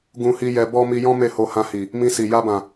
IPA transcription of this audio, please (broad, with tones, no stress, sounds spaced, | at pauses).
ɡ ũ˧ h i˧ j ɛ˧ b ɔ˦ m i˧ j ɔ̃˦ m e˦˨ h o˧ h ã˧ h i˨ | m ĩ˧ s i˨ j a˧ b ã˨